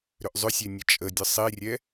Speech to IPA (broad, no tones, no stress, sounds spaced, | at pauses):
ɾ ʏ ʔ zˤ ʏ sʲ e nʲ ə t͡ʃʼ ə dʲ ə sˤ i rʲ ɛ